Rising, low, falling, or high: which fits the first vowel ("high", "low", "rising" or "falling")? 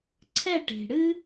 falling